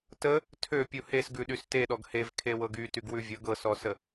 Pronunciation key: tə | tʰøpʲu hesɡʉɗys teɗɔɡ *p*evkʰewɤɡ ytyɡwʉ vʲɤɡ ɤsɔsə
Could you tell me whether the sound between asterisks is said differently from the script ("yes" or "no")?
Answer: yes